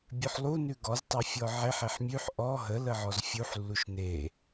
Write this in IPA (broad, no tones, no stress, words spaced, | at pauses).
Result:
bʲʉħlˠu nʉɡɔz tˤefʲɔʕeħ eħmʲʉħ ʔɔ ɦə ləʕɔzfʲuħ lːuʃne